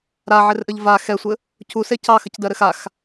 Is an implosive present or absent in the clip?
absent